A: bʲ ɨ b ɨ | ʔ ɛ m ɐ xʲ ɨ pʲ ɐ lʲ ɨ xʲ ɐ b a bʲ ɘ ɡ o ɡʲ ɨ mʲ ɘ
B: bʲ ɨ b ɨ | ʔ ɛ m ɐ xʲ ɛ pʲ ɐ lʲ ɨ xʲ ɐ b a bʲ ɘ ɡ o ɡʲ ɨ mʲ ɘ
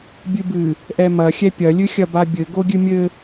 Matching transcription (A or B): B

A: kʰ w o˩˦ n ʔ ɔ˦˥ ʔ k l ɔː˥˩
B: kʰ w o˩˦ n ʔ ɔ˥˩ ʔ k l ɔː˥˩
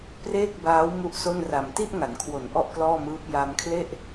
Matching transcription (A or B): B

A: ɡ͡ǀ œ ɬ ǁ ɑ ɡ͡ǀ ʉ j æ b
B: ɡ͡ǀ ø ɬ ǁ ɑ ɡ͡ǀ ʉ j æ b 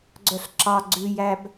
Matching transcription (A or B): A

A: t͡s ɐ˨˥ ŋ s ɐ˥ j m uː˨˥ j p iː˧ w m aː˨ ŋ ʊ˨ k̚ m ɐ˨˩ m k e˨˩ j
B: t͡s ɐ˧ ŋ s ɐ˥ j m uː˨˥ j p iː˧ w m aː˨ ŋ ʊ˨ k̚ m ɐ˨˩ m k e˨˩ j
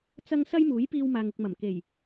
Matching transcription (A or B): B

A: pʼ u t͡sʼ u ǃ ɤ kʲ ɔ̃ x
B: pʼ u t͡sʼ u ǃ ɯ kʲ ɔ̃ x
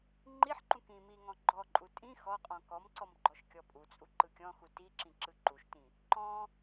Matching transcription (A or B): B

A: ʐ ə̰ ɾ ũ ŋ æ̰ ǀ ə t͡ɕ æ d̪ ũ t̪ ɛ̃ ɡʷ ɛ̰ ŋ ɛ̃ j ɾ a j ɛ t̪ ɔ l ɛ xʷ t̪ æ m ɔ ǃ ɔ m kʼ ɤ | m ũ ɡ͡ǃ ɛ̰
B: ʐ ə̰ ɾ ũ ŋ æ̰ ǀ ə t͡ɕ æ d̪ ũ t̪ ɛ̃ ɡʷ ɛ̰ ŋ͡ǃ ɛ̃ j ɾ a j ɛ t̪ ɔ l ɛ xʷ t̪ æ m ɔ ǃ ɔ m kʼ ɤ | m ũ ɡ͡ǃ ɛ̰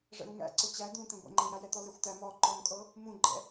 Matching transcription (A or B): B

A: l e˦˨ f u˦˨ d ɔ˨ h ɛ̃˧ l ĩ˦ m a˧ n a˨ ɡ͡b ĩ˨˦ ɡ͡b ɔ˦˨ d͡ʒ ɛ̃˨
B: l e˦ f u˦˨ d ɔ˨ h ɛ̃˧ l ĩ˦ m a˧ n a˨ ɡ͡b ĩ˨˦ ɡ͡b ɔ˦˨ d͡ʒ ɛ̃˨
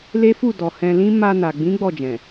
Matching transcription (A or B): B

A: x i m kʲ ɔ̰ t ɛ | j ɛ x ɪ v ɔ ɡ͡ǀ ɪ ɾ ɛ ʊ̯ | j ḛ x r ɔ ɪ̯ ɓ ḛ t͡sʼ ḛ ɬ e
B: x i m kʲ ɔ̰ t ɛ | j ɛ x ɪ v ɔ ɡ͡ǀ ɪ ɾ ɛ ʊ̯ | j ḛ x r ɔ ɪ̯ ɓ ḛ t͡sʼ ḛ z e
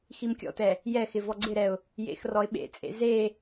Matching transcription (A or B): B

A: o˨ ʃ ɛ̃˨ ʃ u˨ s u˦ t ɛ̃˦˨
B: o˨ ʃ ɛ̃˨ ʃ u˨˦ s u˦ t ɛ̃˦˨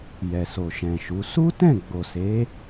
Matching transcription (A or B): B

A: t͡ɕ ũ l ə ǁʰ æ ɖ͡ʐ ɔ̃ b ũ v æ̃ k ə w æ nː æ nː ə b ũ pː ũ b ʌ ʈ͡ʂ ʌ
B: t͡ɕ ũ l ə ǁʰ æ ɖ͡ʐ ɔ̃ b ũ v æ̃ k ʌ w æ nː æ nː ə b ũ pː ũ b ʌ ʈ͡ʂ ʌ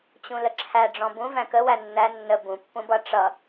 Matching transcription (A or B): A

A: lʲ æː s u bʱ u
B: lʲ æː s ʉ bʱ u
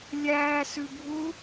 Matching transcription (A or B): B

